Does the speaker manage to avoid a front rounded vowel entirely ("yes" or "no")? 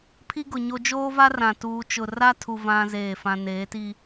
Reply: yes